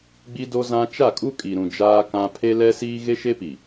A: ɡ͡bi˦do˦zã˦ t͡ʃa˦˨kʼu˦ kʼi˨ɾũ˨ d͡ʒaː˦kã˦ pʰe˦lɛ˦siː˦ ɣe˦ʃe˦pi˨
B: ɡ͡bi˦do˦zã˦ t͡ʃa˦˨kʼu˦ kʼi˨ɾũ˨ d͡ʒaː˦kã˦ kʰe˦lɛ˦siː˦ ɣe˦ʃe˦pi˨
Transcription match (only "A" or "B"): A